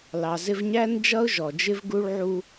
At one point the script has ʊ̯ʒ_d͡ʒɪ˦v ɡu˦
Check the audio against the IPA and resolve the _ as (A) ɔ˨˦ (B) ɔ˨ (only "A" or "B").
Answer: B